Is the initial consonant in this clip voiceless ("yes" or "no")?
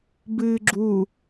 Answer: no